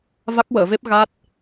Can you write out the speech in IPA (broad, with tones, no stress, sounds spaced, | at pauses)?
v a˦˥ k̚ w əː˨˩˨ v e˦˥ p̚ ɣ a˦˥ t̚